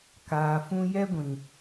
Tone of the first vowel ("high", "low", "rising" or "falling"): low